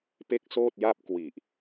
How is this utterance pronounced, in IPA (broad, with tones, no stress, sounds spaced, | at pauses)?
p e˥˩ k̚ s oː˥˩ t̚ j a˥˩ p̚ k w i˨˩ ʔ